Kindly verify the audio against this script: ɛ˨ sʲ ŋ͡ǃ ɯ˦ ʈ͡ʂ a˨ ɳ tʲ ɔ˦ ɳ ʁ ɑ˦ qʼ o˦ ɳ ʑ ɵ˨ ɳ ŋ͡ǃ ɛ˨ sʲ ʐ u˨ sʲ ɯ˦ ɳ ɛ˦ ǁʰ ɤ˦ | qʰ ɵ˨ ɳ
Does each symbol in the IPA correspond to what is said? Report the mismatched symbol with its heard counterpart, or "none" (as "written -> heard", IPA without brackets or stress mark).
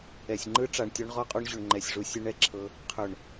ɑ˦ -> ɔ˦